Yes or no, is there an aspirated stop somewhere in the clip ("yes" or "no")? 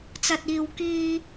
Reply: no